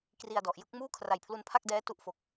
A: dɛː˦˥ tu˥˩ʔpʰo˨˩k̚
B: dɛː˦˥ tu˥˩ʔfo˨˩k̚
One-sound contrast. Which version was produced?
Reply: B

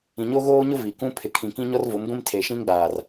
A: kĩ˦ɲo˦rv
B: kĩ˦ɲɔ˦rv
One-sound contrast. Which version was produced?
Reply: B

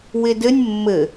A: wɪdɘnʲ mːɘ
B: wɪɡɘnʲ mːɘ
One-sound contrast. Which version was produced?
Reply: A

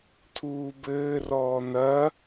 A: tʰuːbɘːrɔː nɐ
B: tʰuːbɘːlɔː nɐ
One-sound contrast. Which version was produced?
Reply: A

